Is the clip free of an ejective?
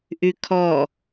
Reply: yes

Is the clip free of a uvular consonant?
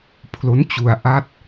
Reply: yes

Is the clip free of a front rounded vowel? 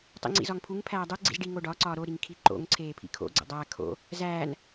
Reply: yes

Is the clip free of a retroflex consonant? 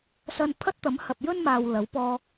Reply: yes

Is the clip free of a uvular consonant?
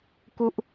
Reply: yes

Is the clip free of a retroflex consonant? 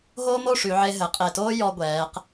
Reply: no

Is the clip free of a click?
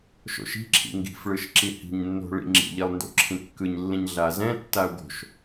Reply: no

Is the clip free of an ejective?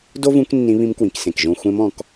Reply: yes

